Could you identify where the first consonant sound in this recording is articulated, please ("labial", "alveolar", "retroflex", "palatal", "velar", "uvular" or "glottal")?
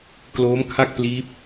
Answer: velar